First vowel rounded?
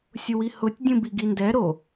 yes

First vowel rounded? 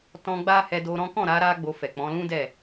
yes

